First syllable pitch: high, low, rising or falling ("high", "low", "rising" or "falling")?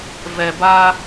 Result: low